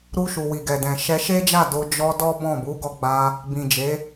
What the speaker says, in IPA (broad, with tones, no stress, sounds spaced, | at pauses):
ɾ u˧ ʃ u˨ w i˨ ɡ ɛ˨ d ɛ̃˨ ʃ ɛ˧ ʃ e˦ d͡ʒ a˦˨ d o˧ d͡ʒ ɔ˧ d ɔ˦ b ɔ̃˦˨ b u˨˦ ɡ ɔ˧ ɡ͡b a˧ | b ĩ˨ d͡ʒ e˨˦